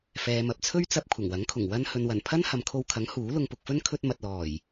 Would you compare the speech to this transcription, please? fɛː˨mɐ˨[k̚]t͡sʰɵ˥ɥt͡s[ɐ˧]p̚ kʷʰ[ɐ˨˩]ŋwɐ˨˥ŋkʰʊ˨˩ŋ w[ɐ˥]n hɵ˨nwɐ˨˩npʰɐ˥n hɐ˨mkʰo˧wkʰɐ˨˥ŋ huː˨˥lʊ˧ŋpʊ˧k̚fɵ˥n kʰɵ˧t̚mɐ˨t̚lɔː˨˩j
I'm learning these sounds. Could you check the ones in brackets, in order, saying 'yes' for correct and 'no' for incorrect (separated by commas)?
no, yes, yes, yes